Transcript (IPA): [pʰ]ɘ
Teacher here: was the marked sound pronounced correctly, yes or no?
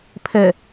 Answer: yes